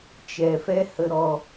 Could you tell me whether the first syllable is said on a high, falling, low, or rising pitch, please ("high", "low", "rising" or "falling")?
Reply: low